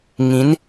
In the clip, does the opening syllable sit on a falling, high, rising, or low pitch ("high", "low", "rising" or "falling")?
rising